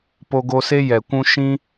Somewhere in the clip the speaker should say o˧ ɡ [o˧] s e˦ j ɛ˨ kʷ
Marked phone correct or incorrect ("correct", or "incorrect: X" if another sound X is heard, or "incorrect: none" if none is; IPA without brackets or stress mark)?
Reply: correct